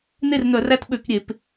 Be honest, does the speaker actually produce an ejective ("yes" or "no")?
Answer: no